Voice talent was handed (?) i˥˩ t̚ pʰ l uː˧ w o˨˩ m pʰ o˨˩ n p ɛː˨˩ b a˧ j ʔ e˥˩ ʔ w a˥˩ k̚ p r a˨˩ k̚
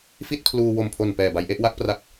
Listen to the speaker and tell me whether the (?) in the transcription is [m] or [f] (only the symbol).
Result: f